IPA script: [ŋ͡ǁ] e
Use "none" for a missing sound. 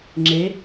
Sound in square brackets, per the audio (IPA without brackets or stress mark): ŋ͡ǁ